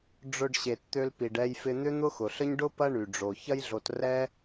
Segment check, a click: absent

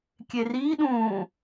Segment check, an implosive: present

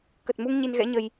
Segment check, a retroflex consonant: absent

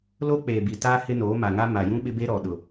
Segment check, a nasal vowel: present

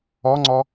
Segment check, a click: present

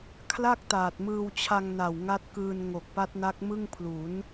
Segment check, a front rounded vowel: absent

